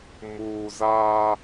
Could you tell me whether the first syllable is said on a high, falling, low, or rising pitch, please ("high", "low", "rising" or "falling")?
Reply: low